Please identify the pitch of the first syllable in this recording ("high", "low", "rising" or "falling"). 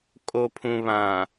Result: low